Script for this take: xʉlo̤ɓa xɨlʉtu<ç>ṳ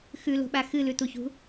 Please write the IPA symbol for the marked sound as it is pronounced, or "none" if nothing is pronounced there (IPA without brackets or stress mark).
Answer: ç